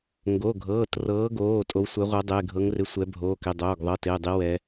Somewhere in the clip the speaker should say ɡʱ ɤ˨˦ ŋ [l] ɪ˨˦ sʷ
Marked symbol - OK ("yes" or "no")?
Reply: no